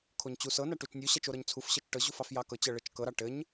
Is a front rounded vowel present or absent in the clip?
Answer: absent